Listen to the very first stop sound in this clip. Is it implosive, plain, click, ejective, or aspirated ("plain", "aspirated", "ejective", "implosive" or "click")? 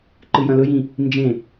click